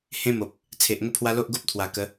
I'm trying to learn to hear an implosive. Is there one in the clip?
no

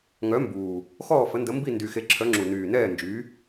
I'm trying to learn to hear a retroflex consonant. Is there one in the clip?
no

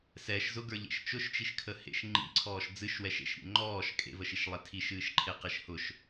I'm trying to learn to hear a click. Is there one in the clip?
yes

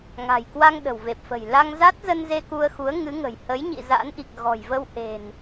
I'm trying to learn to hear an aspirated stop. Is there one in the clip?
no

